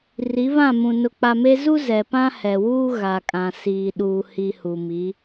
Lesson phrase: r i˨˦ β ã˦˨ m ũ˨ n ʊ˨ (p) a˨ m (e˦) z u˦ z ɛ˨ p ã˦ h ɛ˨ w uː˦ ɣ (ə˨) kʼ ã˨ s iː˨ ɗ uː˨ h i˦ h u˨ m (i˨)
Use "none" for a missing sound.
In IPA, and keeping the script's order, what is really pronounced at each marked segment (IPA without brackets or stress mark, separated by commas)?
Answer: k͡p, e˦, a˨, i˨˦